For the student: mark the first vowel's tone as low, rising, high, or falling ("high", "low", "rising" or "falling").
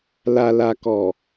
low